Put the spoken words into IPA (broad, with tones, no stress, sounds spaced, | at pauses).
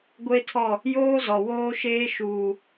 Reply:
ɡʷ e˦ tʰ ɔ˦˨ | j oː˦ z ɔ˨ w oː˦ ʃ eː˦ ʃ uː˨